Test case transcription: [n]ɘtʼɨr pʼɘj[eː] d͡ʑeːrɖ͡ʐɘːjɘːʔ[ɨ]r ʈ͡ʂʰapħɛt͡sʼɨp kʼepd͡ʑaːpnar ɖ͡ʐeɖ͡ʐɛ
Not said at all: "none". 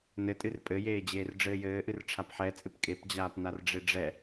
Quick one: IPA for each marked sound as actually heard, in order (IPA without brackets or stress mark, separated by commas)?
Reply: n, eː, ɨ